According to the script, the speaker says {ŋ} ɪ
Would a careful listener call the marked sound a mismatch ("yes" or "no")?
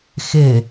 yes